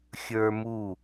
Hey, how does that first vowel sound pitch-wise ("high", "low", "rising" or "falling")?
high